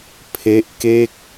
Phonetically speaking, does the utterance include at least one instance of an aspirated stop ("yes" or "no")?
yes